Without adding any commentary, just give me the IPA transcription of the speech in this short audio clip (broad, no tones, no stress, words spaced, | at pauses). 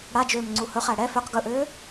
ɽad͡ʒøːm ŋ͡ǀuhɵχæ ɽɛ føq ɡɵʔøː